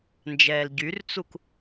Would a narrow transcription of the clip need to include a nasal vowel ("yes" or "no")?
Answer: no